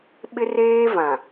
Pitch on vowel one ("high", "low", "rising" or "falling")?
high